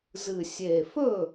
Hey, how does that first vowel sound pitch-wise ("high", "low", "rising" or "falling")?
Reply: low